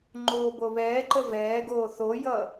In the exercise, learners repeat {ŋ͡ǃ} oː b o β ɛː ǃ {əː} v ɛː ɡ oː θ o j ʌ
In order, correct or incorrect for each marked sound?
correct, incorrect: ə

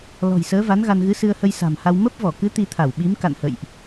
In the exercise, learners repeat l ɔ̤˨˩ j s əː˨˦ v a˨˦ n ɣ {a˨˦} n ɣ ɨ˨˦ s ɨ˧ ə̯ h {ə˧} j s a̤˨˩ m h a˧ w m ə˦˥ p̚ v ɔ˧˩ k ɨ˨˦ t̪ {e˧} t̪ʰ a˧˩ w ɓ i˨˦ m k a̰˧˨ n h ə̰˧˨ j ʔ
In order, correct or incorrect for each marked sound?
incorrect: a˧, correct, incorrect: i˧

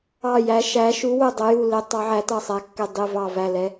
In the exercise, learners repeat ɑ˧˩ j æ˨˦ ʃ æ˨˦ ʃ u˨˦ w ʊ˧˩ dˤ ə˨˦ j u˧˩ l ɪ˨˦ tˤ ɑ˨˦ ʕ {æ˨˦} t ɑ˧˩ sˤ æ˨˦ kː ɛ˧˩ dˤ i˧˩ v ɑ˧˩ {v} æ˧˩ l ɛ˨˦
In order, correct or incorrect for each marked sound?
correct, correct

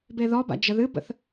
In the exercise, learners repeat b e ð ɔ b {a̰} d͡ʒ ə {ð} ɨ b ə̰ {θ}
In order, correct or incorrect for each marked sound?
correct, correct, correct

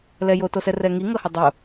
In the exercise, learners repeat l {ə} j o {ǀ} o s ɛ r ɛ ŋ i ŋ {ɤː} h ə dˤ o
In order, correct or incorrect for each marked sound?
incorrect: ɛ, incorrect: t, incorrect: ɤ

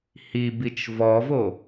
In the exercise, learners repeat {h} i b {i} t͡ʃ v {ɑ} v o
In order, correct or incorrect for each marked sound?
correct, correct, incorrect: ɔ

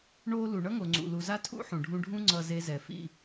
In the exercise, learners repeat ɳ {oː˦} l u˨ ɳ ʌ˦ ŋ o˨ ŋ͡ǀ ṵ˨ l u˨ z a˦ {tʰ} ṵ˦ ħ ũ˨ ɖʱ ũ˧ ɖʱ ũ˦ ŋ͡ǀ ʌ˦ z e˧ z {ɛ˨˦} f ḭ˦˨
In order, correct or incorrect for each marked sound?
correct, correct, incorrect: ɛ˨

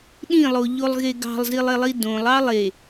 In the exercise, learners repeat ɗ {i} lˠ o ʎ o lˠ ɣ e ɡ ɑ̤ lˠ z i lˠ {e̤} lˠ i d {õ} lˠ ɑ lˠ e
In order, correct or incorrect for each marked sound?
incorrect: ĩ, incorrect: e, correct

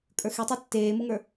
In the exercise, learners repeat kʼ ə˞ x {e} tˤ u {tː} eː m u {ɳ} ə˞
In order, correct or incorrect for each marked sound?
correct, correct, incorrect: ŋ

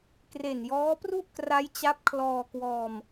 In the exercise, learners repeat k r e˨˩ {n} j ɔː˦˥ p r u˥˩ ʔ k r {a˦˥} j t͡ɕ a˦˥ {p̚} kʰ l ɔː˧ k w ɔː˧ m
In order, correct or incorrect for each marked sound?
correct, correct, correct

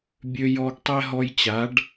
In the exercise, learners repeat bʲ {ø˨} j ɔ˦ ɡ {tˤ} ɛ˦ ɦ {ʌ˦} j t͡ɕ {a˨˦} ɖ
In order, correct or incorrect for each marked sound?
incorrect: ø˦, correct, incorrect: ɔ˦, correct

